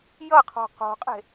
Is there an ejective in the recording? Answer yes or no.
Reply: yes